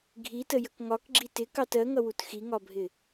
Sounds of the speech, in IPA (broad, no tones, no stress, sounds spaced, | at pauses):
ɡʱ i t ə j ə k ŋ ɒ k ɡ͡ǁ i t ɪ k ɑ t ɜ ŋ ʌ w u t x i ŋ ɒ bʱ ɪ